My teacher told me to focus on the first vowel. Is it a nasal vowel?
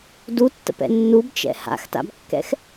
no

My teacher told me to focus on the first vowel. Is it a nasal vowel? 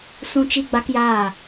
yes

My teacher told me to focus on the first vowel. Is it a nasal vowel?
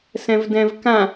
yes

